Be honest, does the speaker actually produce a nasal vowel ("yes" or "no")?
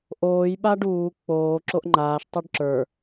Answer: no